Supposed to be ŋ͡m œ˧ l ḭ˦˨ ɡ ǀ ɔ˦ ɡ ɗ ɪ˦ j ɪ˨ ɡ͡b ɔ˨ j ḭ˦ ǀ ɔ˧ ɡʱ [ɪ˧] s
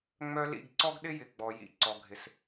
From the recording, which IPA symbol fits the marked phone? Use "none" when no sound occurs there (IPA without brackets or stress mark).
ɪ˧